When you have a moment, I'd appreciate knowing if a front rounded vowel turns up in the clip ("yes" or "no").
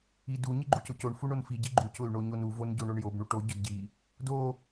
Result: yes